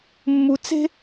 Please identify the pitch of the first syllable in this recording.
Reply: low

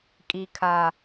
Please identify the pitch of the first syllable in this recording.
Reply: high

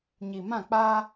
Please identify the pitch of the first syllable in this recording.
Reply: low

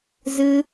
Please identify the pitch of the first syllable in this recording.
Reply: high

